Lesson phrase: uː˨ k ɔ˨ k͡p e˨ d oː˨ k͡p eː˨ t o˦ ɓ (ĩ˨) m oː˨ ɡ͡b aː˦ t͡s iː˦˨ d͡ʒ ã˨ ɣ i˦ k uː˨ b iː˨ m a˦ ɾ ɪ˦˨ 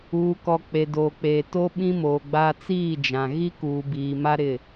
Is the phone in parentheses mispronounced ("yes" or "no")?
yes